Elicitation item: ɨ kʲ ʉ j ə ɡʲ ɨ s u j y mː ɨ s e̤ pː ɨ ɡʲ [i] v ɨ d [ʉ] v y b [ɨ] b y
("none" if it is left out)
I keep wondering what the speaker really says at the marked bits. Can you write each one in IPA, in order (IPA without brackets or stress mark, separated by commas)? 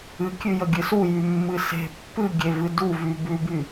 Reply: e, u, ʉ